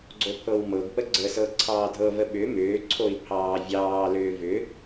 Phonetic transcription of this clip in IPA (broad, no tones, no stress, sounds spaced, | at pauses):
ɡ͡ǀ o pʰ ɤ w m ɤ ɡ p ə ɡ͡ǀ ə s ɤ ǀʰ ɑː dʱ ɤ v ə ɓ ʏ m ʏː ǀʰ o i̯ pʰ ɑː vʲ ɑː l ʏː v ʏ